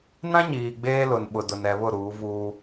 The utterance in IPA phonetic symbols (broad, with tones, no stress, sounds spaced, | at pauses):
n ã˦ ɲ iː˨ ɡ͡b eː˦ l ʊ˨ n ɓ ʊ˨ d ʊ˨ n ɛ˨ β ʊ˦˨ ɾ uː˨˦ v uː˦